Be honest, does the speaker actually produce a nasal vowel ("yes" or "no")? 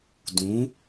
yes